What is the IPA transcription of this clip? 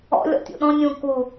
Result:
ɔ̰ lʲ ɔ̰ tʲ ṵ ɗ ɔ̃ nʲ ũ k u

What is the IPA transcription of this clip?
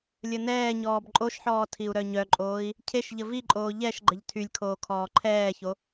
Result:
lʲ ə n ɛː ɲ ɔː b ǃʼ o ʃ ħ ɔː tʰ i u̯ ɾ œ ɲ œ ǃʼ oː i̯ | cʰ e ʃ ʎ ə v i ǃʼ oː ʎ ɛ ʃ ɡ͡ǃ ə ʎ tʰ y lʲ kʰ oː kʰ ɔː ǃʰ ɛː ç o

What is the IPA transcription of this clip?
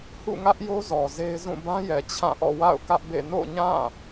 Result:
h ṵ˦˨ ŋ ä˦ ʔ j o˦ z ɔ˨ z e˦ ɪ̯ z ũ˦˨ b ã˦ j ɛ˨ t͡ɕʰ ã˦˨ ʔ ɔ̰˦˨ w a̰˦˨ ʊ̯ k ä˦ ʔ b ḛ˦˨ n o̰˦˨ ɲ ã˦˨

